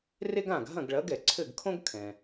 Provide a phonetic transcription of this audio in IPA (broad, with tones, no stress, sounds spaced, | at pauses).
r e˥ ɡ ã˥˩ ɡ ɦ ɐ̃˥˩ ɡ ɭ ɐ˩˥ ɡ ɛ˩ ǀʰ ɘ˥˩ ɡ kʰ õ˥ ɡ kʰ ɛ̃˩